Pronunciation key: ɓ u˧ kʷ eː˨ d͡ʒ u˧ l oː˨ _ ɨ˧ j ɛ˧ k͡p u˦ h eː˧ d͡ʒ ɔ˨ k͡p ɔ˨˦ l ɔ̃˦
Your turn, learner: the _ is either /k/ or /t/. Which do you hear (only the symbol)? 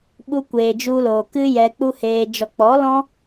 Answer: k